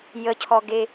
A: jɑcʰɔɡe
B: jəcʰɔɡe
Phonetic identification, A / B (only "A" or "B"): B